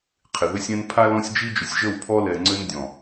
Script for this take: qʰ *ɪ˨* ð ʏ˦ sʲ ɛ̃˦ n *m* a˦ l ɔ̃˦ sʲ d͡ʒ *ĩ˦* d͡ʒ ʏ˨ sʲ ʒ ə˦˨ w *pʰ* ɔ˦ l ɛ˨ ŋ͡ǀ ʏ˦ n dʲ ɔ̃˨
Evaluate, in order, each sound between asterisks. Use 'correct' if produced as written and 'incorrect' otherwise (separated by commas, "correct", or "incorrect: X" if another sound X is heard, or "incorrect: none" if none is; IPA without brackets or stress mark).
correct, incorrect: pʰ, incorrect: i˦, correct